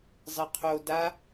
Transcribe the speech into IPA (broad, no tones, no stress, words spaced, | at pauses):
zˤɘqʰo da